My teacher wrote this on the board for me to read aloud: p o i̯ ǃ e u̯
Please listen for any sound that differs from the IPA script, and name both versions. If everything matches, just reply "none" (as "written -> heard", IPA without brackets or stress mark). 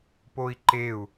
none